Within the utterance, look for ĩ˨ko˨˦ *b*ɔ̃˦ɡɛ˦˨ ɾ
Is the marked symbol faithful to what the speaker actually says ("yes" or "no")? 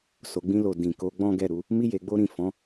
no